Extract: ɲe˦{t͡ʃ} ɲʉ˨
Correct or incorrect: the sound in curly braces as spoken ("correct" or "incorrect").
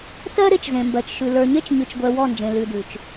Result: correct